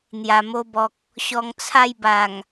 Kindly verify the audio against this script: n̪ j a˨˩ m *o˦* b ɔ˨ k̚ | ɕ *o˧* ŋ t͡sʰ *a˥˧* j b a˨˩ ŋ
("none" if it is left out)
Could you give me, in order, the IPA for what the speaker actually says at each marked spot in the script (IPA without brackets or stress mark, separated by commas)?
o˧, ɔ˧, a˥˧